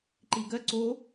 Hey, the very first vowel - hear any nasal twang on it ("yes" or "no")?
no